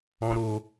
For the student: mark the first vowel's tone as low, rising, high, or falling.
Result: high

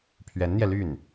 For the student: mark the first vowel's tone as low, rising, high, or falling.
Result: rising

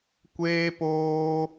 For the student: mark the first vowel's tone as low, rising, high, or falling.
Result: high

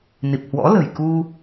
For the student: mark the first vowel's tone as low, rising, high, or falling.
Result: low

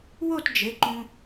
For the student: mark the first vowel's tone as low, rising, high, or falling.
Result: falling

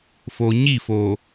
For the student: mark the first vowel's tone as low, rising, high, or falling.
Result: low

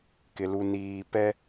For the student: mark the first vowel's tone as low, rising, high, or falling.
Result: low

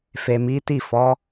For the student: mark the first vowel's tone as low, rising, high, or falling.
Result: low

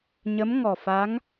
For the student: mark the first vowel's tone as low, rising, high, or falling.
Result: rising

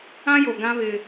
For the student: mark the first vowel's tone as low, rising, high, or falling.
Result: high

